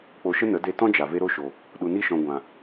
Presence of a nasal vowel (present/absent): present